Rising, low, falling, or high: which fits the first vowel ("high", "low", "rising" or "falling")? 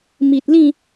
low